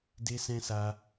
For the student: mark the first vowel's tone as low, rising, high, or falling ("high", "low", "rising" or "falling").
high